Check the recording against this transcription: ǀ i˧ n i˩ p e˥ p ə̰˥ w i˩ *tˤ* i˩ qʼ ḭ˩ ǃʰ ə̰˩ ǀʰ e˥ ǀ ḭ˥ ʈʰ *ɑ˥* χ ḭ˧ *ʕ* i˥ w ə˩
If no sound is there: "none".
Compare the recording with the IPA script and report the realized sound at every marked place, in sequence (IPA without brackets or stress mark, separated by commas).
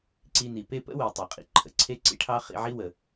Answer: tˤ, ɑ˥, ʕ